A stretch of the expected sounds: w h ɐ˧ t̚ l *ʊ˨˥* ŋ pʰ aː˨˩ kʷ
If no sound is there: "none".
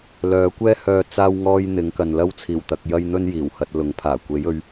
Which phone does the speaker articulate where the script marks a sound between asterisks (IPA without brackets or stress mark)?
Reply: ʊ˨˥